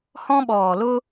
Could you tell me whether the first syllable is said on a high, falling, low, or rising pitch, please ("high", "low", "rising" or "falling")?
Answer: high